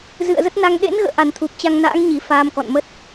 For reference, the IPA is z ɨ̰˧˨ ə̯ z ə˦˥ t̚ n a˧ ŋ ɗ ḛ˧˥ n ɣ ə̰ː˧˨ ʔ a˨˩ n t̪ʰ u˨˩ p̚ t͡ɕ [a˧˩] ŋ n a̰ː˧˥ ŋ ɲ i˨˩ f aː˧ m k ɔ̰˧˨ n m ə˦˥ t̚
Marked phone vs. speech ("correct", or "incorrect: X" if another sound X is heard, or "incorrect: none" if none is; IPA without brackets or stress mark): incorrect: a˧